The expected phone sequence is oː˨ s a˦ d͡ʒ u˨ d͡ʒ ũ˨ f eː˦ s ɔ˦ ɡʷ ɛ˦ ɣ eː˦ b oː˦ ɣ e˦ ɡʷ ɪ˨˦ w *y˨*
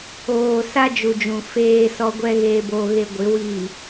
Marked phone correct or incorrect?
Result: incorrect